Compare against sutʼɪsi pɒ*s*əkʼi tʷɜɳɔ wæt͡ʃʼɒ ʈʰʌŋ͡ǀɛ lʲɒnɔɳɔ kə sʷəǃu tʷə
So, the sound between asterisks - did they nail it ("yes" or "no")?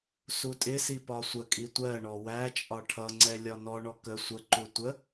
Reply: no